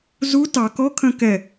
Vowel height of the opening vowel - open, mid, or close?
close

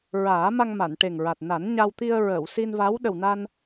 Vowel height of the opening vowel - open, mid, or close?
open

